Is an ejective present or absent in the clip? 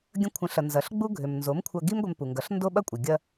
present